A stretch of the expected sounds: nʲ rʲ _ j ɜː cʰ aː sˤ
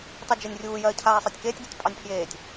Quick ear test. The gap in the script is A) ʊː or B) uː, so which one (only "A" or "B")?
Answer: B